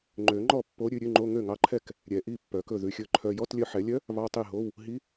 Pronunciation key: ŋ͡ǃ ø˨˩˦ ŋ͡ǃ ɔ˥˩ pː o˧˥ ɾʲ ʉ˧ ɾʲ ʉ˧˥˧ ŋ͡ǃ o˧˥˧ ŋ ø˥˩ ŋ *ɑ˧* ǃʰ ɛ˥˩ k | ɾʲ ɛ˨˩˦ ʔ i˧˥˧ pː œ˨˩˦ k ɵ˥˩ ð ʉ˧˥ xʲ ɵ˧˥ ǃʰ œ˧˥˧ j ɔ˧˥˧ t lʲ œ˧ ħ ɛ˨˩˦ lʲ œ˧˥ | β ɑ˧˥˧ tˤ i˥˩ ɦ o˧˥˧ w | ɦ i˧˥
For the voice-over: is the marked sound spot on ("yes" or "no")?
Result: no